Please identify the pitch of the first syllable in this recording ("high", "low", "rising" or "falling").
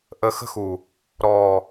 low